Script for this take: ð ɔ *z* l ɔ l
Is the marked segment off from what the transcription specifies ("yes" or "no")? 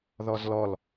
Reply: no